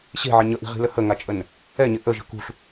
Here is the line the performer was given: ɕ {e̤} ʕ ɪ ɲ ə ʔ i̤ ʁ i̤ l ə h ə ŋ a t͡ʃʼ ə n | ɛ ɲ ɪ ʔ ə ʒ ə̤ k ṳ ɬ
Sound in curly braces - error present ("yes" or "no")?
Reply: no